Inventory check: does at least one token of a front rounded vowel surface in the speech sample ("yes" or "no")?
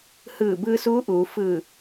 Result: no